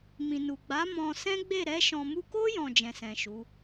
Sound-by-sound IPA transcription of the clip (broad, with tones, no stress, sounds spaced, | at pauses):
m ĩ˨ n u˨ ɡ͡b a˨˦ m ɔ̃˧ s ɛ̃˦ ɡ͡b e˦˨ ɾ ɛ˧ ʃ ɔ̃˨ m u˧ k o˦ j ɔ̃˦˨ d͡ʒ ɛ̃˨ s ɛ̃˨ ʃ u˨˦